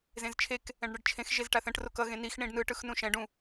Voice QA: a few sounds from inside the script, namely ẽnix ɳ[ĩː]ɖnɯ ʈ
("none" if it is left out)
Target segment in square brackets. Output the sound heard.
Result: ĩ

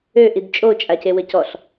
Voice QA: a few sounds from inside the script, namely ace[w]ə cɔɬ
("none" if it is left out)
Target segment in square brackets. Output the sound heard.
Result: w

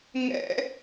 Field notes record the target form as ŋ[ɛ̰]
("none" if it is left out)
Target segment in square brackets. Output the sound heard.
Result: ɛ̰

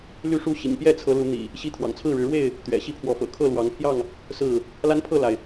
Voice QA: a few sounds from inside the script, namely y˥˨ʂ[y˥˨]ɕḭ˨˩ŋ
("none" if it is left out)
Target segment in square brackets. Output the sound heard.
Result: u˥˨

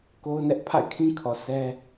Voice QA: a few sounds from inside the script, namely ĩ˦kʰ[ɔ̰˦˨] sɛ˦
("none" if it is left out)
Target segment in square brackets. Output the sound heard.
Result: ɔ˨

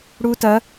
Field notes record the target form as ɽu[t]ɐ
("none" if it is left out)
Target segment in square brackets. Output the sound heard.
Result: t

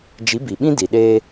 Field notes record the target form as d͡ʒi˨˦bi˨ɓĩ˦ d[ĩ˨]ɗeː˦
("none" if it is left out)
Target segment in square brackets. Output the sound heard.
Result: i˨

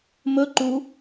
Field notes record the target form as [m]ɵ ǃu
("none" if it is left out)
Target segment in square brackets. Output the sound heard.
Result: m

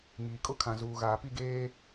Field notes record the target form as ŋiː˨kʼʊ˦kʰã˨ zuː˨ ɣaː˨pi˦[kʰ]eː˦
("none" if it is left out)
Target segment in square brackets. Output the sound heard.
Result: ɡ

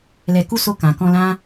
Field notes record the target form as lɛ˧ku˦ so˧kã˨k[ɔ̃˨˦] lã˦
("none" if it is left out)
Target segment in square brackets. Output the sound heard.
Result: ɔ̃˧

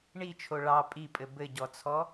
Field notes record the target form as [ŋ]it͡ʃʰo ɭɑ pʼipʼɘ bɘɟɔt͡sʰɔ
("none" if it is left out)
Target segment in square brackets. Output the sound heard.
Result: ɳ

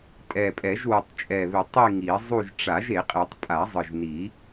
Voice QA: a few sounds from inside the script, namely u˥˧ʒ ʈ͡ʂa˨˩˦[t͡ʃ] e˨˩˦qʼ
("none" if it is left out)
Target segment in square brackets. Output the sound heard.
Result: ʒ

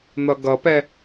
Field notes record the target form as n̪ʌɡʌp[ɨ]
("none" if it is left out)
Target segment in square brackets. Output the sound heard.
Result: ɛ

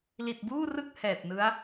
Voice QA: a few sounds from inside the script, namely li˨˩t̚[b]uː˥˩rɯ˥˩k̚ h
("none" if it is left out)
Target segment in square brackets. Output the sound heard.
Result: b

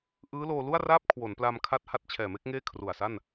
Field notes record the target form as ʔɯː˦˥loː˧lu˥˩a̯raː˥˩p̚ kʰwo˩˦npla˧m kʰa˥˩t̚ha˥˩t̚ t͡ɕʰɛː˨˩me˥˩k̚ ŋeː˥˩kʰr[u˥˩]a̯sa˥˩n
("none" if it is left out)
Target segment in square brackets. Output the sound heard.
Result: u˨˩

